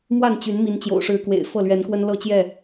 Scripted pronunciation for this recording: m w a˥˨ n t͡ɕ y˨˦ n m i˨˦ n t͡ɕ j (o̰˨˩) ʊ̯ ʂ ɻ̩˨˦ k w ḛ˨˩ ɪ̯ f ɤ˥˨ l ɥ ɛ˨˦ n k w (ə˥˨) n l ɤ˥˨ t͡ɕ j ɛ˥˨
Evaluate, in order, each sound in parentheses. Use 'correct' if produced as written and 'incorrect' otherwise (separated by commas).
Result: correct, incorrect